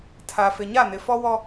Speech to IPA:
tʰ a˨ f ɪ˨ ɲ a˦˨ n ɪ˨ f ɔ˦ w ɔ˦

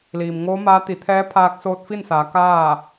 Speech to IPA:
l iː˩ m ŋ oː˧˥ m aː˧˥ t̪ i˩˧ t̪ʰ ɛː˧˥ pʰ aː˧ k̚ s oː˧ t̚ f i˥˨ n s aː˩˧ k aː˥˨

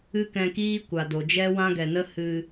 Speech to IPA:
ɨ˦ k ɛ̃˧ k iː˦ kʷ a˨ d o˨ d͡ʒ ɛ˦ w ã˦ ɡ ɛ˨ n ə˦ h ɨ˧

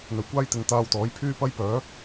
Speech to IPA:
n̪ ɵ˨˩ ɥ kʷ aː˥ j t̪ ɪ˨˧ ŋ t̪ aː˧ w t̪ ɔː˨˥ j pʰ yː˥ p ɐ˥ j p œː˨˥

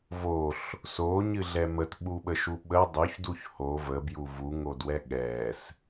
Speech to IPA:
v o ɬ | s o ɲ ɨ ɮ ɛ m ə t ɓ u ɓ ə ʃ u ɓ ə dˤ ʉ ç d u ç h o v ə b j u v u ŋ o d w ɛ ɠ ɛ s

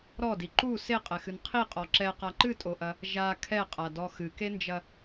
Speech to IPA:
ɾ ɔ d i ǃ u s e qʼ ɛ x ɨ n qʰ i qʼ ɔ ǁ ɛ q a ǃ ɨ tʼ o ʔ ɐ | ʒ a kʰ ɛ qʼ a d ɔ x ɨ k e n d͡ʒ ɐ

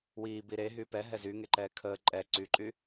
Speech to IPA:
w iː b i ɾ e ɦ yː p ɛ ɦ ɛ z y ŋ e ǃ ɛː kʰ əː ǃʼ ɛ ǀ y ǃʼ y

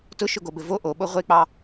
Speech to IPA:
t ʊ ʃ ʊ ɡ o b ɘ v o ʔ o ɓ o ʁʷ e k͡p ɑ

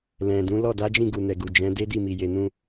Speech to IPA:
l ɛ̃˨ d ũ˨˦ l ɔ˦˨ d a˨˦ d͡ʒ ĩ˦˨ ɡ u˨ n ɛ˨ ɡ u˨ d͡ʒ ɛ̃˨˦ d e˦ d i˦˨ m i˨ j e˨ n ũ˧

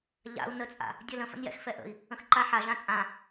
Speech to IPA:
ʎ a̰ u̯ n ə t͡sʼ a̰ | dʲ ɜ l ə̃ f ə̰ n j ɛ̰ x f ɛ ʔ ə̰ i̯ | ə̃ x ǃ a ħ a ʒ ã t͡sʼ ã

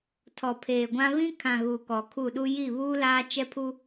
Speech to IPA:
tʰ ɔ˨ pʰ eː˨ ɡʷ ã˦ β ĩ˦ kʰ ã˨ ɣ u˨ k ɔ˨ kʰ u˦˨ ɗ u˦ j i˦˨ β uː˦ l aː˦ t͡ʃ ɛ˦ pʰ u˦

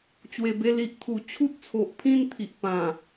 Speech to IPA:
t͡ɕ w e˨˩ b e˧ l i˨ ʔ t̪ʰ u˨˩ t͡ɕʰ u˦ t̚ t͡sʰ o˨ ʔ pʰ ĩ˥˧ n t̪ʰ i˨ ʔ p ã˨˩

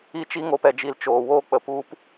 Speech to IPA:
i˦ t͡ʃ i˦ ŋ o˧ p ɛ˨ d͡ʒ i˨ l t͡ʃ oː˨ w oː˦ k͡p ə˨ p u˧ p

